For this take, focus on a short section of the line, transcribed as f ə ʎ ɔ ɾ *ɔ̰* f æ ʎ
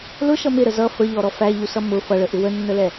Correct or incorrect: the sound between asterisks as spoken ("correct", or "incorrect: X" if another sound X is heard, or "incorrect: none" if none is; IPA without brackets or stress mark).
incorrect: ɔ